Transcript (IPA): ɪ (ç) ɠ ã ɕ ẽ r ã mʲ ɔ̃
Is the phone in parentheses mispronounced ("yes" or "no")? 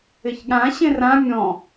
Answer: no